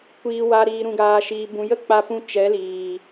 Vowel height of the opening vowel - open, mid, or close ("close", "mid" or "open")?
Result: close